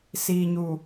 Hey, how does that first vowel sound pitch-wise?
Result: low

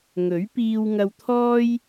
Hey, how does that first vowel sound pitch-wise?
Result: rising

